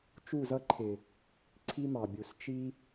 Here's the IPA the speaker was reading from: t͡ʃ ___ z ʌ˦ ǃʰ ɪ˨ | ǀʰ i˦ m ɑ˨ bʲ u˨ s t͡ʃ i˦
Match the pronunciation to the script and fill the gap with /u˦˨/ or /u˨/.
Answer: u˦˨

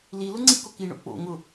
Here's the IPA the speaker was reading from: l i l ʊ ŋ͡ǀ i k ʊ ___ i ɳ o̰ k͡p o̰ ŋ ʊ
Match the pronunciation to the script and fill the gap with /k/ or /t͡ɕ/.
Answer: k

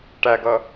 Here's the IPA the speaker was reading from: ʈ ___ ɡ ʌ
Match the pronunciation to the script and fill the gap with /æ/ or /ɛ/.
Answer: æ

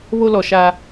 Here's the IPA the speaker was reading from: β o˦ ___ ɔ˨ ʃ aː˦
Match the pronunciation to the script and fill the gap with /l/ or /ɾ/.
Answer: l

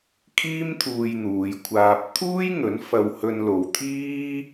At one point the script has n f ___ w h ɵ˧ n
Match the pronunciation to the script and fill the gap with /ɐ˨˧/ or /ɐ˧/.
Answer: ɐ˧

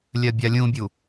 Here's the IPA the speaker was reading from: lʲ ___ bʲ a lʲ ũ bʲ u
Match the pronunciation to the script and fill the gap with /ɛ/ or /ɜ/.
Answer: ɜ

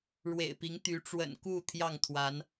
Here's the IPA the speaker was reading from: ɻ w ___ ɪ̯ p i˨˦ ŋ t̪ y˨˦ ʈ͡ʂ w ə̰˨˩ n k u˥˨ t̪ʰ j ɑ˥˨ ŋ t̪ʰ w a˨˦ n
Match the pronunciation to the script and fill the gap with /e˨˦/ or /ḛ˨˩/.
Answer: ḛ˨˩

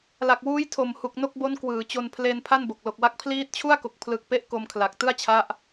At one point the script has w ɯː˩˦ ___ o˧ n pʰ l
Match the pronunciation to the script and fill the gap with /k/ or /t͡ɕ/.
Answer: t͡ɕ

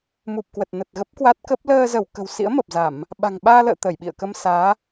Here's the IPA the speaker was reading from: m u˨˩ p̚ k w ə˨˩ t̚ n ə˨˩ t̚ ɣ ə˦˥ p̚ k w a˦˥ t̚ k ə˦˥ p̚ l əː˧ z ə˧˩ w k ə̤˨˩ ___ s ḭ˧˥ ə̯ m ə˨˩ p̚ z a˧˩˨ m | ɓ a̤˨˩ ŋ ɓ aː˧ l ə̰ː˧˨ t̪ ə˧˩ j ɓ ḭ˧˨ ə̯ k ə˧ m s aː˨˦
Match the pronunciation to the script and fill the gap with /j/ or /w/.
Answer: w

